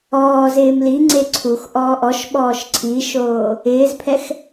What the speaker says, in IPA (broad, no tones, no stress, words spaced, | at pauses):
ɔːz ɪːmliŋ͡ǀe ǀʰux ʔɔːʔɔʃɓɔːʃ ǀʰiʃoː | ɪːzpʰɛx